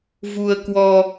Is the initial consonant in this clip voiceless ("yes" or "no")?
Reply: no